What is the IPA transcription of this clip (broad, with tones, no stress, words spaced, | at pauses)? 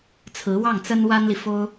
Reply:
t͡sʰɹ̩˧˥wɑ˥˩ŋt͡sə˥n wa˥nli˨fo˥ʊ̯